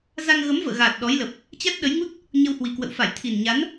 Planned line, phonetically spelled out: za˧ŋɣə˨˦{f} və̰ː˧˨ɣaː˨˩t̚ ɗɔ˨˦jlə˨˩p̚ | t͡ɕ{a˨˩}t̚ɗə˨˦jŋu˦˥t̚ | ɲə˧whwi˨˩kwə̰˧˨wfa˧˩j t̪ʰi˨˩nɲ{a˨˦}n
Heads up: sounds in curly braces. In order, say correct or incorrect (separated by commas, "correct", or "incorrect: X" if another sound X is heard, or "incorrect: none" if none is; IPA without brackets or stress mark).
incorrect: m, incorrect: a˦˥, correct